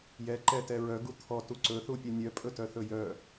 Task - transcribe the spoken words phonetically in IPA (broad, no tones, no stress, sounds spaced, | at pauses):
j ɛ ǃ ɛ t ɛ ɹ œ ɡ u t̪ʰ ɔ t u ǀ ɵ θ u pʲ ɛ nʲ œ pʼ ɵ t œ θ ɵ j œ